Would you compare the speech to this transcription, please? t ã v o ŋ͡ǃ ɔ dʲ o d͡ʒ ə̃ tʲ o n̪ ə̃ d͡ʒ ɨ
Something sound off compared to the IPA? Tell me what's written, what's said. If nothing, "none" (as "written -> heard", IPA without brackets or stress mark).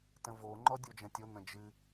ã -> ə̃